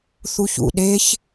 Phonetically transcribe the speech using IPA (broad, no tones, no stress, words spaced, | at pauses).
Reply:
θuçṵ ɗeç